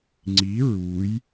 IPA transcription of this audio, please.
ŋ͡ǀi ɹuj

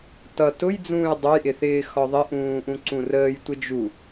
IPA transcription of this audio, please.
tʌ tʊj d͡zũːjdˤʊj ʔɪθɪːxɒðˤɪ ʔũːʔũǀũrəːj tʷɪd͡ʒu

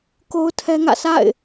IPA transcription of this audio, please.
ko˦ʊ̯tʰɛ˦ŋä̰˦˨ sa̰˦˨ɪ̯

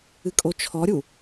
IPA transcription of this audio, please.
ɨkʼot͡ʃʰɔɾʲu

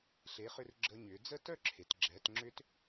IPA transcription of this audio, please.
ɬe˩˧χʏ˧r ɡ͡ǁə˧ɲʏ˩˧ d͡zə˥tœ˥ǁʰe˩tɡ͡ǁɛ˩˧t ŋ͡ǁʏ˧˥t

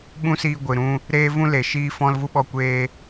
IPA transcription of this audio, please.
ɓũ˦siː˧ ɡʷɨ˨ɾũ˧ | ɾeː˦ vũ˧le˨ ʃiː˦fɔ̃˦l vu˦ɓɔ˦kʷeː˦

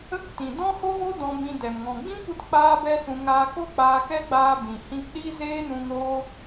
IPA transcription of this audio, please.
ə˦ktĩ˨ dɔ̃˦ ho˦ɣo˦ dɔ̃˧bĩ˧ dɛ˨mŋɔ̃˨ ɡ͡bĩ˦kʷɨ˧tk͡paː˧ bɛ˦sũ˧ ŋaː˧ko˦ k͡paː˧kɛ˦ɡ͡baː˧bĩ˨ hĩ˧pɗi˦zeː˦nũ˧ŋ ɾoː˦

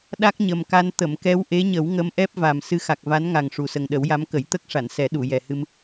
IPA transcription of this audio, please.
ɗa˦˥k̚ɲə˨˩mka˧n t̪ə˨˩˨mkɛ˧˥w ʔe˧˥ɲə˨˩˦w ŋə˧˥mʔɛ˦˥p̚va˨˩m sɨ˧xa˨˩k̚va˧˥nŋa˨˩ŋ ʂu˨˩sə˨˩ŋɗə˨˩˦w ja˧˥mkə˨˩˦j t̪ə˦˥k̚ʂa˨˩˨n sɛ˨˩˦ɗu˨˩˨jɛ˨˩hɨ˧m

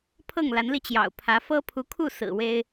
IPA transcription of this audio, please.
pʰɤ˥˨ŋla˨˦nli˧ t͡ɕjɑ̰˨˩ʊ̯ pʰä˨˦fɤ˦pʰu˨˦ kʰu˥˨sɹ̩˨˩ we˦ɪ̯

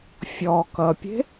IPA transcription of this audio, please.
fʲɔ kʌpʲe̤

